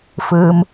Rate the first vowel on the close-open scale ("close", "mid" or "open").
close